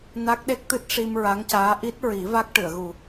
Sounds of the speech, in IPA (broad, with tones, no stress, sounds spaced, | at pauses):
n a˦˥ k̚ ɗ e˦˥ k̚ t̪ ɨ˦˥ t̚ ʂ i˧ m ɹ a˧˥ ŋ c aː˧˥ ʔ i˦˥ t̚ ɹ i˨˩˦ v a˦˥ k̚ ʈ ɨ˨˩˨ ə̯ ɣ u˨˩